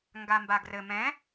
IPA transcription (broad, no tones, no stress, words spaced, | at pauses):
ŋɡambaɡrɘ mɛ̃